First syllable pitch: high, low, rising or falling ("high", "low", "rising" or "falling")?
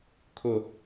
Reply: low